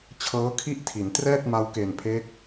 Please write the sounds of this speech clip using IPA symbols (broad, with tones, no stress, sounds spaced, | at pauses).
t͡ɕʰ ɤː˦˥ kʰ i˥˩ ʔ tʰ i˩˦ n t r ɛː˥˩ t̚ m a˧ w k e˨˩ n pʰ e˦˥ k̚